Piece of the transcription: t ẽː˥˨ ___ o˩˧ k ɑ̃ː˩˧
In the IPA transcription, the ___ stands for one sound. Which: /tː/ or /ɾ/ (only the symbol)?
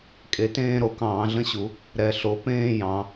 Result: ɾ